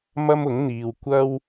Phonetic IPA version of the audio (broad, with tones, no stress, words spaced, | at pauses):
mɐ˥mʊ˨˥ŋn̪iː˨w kʷɐ˥w